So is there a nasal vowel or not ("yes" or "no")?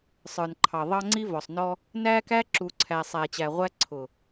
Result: no